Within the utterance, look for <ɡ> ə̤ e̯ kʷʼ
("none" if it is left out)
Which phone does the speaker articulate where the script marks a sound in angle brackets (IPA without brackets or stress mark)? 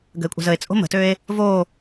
ɡ